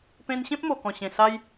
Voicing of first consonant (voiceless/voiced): voiceless